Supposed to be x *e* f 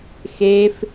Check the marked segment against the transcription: correct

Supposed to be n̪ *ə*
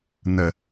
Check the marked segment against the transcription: correct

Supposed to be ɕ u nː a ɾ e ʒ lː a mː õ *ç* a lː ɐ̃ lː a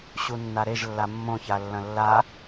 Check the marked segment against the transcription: correct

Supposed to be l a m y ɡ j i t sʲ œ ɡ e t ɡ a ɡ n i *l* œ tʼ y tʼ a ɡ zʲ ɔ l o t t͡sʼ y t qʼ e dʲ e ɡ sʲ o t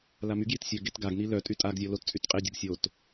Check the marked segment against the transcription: correct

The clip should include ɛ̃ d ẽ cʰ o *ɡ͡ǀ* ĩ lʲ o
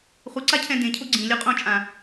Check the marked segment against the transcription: correct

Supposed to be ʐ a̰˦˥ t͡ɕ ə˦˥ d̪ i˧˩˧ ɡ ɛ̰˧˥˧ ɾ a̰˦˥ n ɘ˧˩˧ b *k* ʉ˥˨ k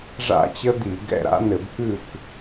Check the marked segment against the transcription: correct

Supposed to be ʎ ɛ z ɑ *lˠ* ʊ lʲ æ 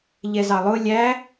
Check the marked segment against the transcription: correct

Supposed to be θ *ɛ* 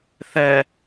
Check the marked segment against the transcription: correct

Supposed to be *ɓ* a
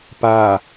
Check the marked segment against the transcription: incorrect: p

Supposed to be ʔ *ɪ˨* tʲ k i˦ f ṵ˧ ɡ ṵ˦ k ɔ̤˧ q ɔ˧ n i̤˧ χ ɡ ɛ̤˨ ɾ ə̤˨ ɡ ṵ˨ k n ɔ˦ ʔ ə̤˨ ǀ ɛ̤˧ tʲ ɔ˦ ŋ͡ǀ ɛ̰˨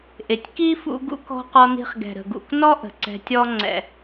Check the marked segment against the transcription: correct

